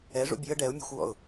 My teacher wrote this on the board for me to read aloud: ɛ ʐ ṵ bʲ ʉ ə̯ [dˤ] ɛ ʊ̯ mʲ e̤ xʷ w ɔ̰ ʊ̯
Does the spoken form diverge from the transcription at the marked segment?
yes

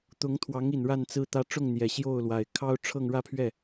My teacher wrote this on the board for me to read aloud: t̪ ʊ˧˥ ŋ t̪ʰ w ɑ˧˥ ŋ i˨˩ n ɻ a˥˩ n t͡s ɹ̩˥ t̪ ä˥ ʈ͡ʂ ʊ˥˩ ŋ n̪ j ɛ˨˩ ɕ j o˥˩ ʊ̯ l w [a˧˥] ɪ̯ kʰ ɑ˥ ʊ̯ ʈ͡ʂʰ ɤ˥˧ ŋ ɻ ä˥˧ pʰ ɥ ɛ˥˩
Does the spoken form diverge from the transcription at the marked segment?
yes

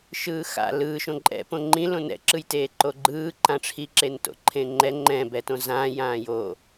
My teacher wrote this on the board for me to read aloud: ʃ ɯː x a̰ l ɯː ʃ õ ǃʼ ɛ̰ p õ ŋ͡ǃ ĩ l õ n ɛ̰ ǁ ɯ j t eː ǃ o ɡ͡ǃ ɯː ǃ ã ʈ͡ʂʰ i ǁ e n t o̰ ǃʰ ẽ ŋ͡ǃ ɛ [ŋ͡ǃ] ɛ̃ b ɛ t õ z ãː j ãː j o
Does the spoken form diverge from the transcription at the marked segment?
no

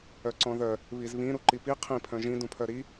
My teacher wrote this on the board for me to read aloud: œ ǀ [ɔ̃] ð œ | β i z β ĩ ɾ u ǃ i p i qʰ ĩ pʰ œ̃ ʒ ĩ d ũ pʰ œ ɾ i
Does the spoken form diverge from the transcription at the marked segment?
no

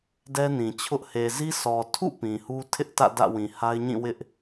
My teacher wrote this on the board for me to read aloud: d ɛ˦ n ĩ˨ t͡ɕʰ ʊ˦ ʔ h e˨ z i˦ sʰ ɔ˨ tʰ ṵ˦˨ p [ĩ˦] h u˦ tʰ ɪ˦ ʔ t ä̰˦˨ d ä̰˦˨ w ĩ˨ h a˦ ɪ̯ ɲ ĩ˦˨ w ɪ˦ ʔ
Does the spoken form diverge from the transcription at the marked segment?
yes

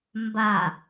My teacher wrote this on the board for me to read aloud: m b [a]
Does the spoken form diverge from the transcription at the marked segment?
no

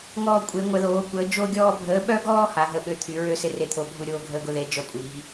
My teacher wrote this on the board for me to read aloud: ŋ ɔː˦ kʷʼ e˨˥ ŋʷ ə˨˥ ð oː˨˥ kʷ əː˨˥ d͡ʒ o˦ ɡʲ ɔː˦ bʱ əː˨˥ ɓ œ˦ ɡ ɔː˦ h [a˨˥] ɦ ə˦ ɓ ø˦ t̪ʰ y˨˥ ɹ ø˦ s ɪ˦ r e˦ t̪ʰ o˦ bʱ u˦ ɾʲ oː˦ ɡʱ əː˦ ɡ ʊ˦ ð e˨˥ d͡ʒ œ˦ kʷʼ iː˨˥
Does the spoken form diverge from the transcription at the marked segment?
no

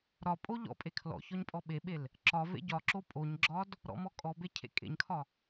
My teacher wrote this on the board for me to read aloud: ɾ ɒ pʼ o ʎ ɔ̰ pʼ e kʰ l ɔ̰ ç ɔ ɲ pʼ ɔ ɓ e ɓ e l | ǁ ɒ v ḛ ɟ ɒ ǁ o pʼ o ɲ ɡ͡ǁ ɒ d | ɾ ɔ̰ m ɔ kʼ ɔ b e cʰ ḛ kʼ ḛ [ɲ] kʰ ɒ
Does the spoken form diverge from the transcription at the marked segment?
no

